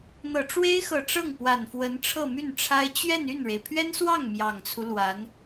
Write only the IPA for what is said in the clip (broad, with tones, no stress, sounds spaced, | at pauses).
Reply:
n̪ ɤ˨˩ ʈ͡ʂ w e˥ ɪ̯ x ɤ˨˩ ʈ͡ʂ ɤ˥˩ ŋ p w a˨˩ n f w ə˧˥ n ʈ͡ʂʰ ɤ˥˧ m y˥˩ n ʈ͡ʂʰ a˥ ɪ̯ t͡ɕ ɥ ɛ˥˧ n y˥˩ n ɻ e˩ ɪ̯ pʰ ɥ ɛ˥ n s w ɑ˥˩ ŋ m j ɑ˨˩ ŋ t͡sʰ u˦ l w a˧˥ n